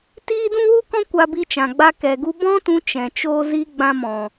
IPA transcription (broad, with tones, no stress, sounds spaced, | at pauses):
t iː˦ d ũ˦ w u˦ k ɔ̃˦ kʷ a˧ b i˧ t͡ʃ ã˨ ɡ͡b a˧ k ɛ˨ ɡ u˧ b ɔ̃˦ t ũ˧ t͡ʃ ɛ̃˨ t͡ʃ oː˦ z i˦ ɡ͡b ã˧ m ɔ̃˨